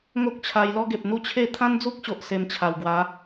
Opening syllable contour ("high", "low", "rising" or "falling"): high